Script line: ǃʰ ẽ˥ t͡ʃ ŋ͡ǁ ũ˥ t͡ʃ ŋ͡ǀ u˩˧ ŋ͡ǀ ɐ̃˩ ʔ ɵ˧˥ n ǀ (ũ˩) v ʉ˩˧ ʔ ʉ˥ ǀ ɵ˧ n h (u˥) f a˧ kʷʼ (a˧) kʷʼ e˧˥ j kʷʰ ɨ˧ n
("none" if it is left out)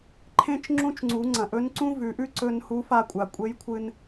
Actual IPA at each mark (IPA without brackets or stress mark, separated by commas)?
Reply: ũ˥, u˧˥, a˩